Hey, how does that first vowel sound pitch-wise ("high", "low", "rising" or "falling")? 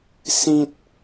low